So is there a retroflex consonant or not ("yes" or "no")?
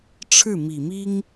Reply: yes